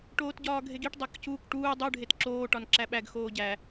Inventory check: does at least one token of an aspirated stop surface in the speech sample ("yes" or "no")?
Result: no